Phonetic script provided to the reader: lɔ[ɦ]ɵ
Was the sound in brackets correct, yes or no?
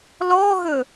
yes